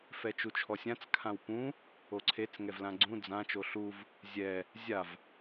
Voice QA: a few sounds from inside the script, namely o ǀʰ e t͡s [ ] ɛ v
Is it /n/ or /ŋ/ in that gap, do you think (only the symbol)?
ŋ